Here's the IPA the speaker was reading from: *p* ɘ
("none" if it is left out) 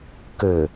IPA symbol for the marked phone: k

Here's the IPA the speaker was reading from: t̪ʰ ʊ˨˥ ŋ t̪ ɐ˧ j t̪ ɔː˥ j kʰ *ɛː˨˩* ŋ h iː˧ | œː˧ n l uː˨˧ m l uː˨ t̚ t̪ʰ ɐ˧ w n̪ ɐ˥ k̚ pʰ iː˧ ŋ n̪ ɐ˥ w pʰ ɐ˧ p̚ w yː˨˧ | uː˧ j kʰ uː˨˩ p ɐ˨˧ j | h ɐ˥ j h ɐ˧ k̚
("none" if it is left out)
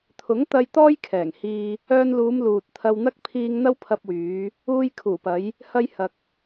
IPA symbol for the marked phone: ɛː˨˩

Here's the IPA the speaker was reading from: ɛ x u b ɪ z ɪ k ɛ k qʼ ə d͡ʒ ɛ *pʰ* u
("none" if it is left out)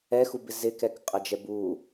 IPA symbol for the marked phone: b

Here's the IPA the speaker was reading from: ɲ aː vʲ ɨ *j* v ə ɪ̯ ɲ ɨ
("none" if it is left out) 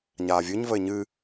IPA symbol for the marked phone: ɲ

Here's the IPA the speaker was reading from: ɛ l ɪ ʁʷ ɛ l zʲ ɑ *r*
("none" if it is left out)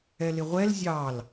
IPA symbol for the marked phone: l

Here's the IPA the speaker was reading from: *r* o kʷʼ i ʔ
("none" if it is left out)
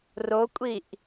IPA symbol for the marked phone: r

